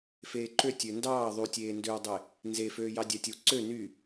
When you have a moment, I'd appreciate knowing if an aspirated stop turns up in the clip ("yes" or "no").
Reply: no